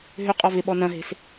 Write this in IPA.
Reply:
ɦ ʏ qʼ ɔ v ɪ ɓ ɔ n ɐ̃ ɦ e̤ s

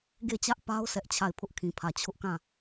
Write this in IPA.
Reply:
ɡ e˦˨ t͡ɕ ä˦ ʔ p a˦ ʊ̯ s ɛ˦ ʔ t͡ɕʰ a˦˨ ɪ̯ pʰ ʊ˦ ʔ kʰ ĩ˨ pʰ ä˨ t͡ɕʰ ʊ˦ ʔ k ã˦˨

